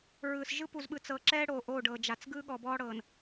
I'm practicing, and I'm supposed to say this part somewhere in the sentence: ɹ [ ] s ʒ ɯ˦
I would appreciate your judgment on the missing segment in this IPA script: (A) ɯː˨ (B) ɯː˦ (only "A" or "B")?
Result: A